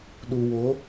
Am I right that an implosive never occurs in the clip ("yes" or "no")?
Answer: no